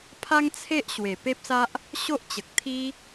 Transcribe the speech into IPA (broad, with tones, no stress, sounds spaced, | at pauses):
pʰ a˦ ŋ t͡sʰ e˦ ʔ ɕ w e˨˩ p e˦ p̚ s a˦ ʔ | ɕ o˦ ʔ t͡ɕ ə˨ k̚ t̪ʰ i˦